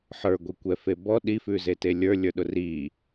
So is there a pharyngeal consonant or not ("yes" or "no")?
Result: yes